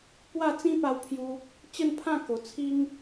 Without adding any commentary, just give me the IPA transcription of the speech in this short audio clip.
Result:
pwa˥˧ t͡sĩ˦pa˧wpʰju˧ | t͡ɕə˥˧npʰã˥˧ ko˨˩ t͡sʰi˦ŋ

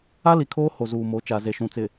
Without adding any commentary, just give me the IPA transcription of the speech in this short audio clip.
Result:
a˦li˨kʰoː˦ ho˨zuː˨mo˨˦ t͡ʃa˨ze˨ʃũ˨ t͡sɪ˨

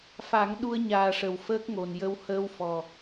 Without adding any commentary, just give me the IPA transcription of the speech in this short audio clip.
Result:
fa˨˩˦ŋ ɗu˧ə̯ ɲaː˨˩ʂə˨˩˨w fəː˦˥k̚ŋo˨˩n jə˧whəː˧˥w fɔ˨˩

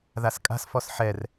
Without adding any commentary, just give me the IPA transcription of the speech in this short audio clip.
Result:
ðaskʼa̤s fɔsħɛr

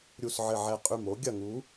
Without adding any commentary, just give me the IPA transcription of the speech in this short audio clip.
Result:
ɾʲu˨˩sʕɘ˨˩ʕɛ˨˩ qʼy˨˩m o˨˦ ɡʲɐ˨˩ŋu˨˦

